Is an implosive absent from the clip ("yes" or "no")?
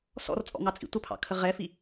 yes